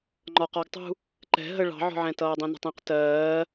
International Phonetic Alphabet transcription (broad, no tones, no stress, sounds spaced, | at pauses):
ŋ͡ǃ ɒ q ɒ ɡ tˤ ṳ | ǃ ɛ̤ ɦ ə ɭ ɑ̤ ʕ ɔ̤ ʕ ɛ̃ t ʌː dˤ ĩ n ə̤ tˤ ĩ q t ɜː